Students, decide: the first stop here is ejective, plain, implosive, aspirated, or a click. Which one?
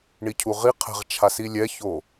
aspirated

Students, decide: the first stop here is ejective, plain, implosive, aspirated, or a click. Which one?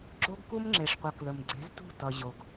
click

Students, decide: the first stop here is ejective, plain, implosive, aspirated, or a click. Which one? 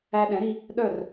implosive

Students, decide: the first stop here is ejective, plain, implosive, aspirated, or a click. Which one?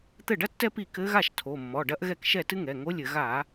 plain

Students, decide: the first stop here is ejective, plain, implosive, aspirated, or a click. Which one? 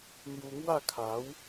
aspirated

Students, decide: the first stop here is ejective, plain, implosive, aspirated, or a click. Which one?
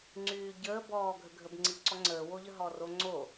click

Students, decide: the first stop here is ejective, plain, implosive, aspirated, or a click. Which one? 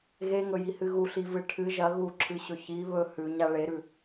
aspirated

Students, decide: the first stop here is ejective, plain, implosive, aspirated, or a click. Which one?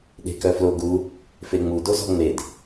implosive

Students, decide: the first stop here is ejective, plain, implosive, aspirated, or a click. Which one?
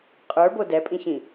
ejective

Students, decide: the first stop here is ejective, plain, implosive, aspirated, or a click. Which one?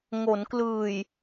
plain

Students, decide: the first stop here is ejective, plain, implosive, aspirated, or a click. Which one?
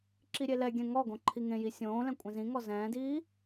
click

